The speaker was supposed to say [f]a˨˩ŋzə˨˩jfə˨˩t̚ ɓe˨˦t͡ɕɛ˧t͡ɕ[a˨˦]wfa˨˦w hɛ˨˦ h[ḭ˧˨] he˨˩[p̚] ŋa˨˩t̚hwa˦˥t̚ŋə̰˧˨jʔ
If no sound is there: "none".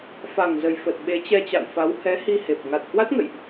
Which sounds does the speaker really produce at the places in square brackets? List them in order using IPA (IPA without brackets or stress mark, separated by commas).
f, a̰˧˨, i˧, p̚